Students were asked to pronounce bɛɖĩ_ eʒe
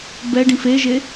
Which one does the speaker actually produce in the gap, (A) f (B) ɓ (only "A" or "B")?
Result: A